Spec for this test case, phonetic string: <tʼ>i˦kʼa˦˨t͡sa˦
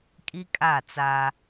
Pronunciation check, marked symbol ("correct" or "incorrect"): incorrect